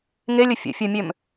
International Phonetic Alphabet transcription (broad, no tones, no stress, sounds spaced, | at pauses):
ŋ e lʲ ə fʲ ə̰ fʲ ə˞ mʲ ø m